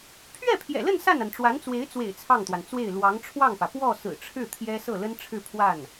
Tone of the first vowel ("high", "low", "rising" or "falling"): falling